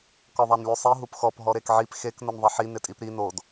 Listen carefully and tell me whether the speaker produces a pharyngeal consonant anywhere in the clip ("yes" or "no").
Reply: yes